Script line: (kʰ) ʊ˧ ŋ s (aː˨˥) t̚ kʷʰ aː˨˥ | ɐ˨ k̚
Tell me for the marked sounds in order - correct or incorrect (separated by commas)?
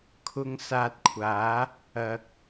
correct, incorrect